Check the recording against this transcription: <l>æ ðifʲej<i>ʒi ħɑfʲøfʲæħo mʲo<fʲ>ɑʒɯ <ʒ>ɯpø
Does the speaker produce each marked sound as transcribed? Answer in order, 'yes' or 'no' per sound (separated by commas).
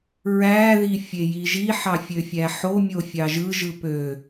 no, yes, yes, yes